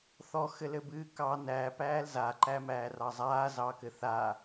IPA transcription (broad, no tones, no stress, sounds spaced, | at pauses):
θ ɔ x ɘ l ɘ b ɨː k ɑ n æ p æː l z a ǃ æ m æː r ɑ zˤ aː z ɑ k ɘ θ a